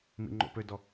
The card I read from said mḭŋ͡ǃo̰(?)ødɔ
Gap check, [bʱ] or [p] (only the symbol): p